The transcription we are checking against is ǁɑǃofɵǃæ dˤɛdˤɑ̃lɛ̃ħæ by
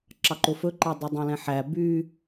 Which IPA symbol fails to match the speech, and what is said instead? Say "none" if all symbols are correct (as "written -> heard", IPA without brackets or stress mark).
none